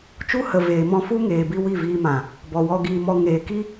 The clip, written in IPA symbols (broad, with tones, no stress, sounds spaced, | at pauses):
t͡ʃ u˦ h ə˨ v eː˨ m ɔ̃˧ f u˦ ŋ eː˨ b i˧ w i˦˨ v iː˧ m ã˨ | b ɔ˨ w ɔ˧ ɡ iː˧ m ɔ˧ ŋ eː˨ k i˦